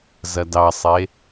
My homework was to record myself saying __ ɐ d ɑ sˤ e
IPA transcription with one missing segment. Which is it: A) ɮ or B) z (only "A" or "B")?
B